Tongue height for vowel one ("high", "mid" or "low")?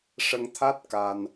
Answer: mid